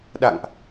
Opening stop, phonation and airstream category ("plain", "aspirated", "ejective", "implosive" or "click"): implosive